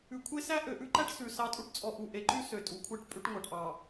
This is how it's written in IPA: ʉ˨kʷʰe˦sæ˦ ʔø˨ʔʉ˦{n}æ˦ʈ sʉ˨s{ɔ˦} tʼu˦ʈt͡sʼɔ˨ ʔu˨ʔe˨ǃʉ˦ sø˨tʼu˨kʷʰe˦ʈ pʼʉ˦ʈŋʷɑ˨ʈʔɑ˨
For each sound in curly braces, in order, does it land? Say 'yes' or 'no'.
no, no

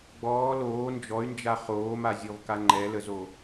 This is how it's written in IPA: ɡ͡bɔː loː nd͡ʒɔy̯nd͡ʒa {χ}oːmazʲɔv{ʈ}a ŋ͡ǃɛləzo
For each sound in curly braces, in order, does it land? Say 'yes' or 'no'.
yes, no

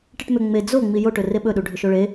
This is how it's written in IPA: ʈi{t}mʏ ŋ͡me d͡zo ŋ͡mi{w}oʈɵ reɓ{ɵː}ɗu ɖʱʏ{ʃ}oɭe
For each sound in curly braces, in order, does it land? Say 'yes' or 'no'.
no, no, no, yes

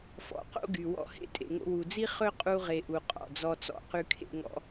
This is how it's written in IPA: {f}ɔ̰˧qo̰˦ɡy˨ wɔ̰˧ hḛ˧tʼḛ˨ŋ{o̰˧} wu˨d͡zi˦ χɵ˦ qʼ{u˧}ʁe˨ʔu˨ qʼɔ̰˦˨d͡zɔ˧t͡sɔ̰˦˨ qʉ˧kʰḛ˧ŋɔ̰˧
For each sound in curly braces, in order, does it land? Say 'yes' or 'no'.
yes, yes, yes

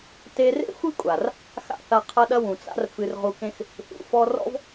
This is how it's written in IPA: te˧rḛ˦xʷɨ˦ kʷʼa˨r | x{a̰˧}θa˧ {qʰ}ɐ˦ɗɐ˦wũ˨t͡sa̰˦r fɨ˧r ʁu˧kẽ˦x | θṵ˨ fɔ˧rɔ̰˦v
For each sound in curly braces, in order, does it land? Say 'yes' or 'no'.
no, yes

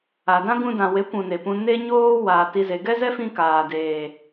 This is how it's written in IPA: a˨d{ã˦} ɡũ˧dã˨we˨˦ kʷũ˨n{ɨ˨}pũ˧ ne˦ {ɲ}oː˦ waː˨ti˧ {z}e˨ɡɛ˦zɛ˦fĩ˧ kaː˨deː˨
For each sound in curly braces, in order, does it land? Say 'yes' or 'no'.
yes, no, yes, yes

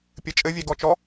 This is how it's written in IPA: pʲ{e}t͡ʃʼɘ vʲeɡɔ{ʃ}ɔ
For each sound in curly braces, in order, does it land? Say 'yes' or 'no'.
no, no

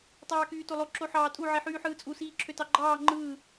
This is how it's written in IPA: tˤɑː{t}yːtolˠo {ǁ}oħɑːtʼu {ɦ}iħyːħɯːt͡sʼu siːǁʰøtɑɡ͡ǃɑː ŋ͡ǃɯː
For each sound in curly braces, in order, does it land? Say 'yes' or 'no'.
no, yes, no

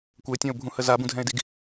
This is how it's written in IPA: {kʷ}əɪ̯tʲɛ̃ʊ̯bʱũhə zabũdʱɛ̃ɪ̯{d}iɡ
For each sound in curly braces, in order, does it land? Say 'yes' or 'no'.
yes, yes

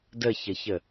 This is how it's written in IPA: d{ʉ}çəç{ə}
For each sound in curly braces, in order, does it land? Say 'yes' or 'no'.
no, yes

